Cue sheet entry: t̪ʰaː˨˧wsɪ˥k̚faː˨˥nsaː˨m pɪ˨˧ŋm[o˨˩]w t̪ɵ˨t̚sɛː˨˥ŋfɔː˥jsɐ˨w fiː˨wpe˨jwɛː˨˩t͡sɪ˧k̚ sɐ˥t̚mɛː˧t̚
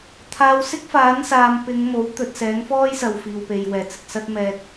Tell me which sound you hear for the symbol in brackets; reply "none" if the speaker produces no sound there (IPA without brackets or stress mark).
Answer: o˨˥